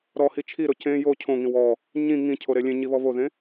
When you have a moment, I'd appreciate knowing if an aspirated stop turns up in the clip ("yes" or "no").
yes